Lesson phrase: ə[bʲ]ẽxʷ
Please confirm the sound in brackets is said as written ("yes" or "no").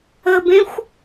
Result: no